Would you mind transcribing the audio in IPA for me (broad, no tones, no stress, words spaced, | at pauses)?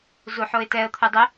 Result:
zuħoɪ̯tɛə̯ t̪ʰudˤʏ